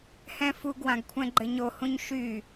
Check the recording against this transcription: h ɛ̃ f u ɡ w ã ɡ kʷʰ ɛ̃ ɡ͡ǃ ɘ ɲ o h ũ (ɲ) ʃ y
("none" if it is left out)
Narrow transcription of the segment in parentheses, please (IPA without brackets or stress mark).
ɲ